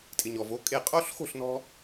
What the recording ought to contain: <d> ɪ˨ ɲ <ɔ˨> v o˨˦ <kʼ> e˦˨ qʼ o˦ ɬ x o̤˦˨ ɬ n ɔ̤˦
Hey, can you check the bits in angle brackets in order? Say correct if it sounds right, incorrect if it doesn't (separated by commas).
incorrect, correct, correct